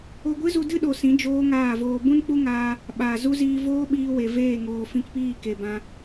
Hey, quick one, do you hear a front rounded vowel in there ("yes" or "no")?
no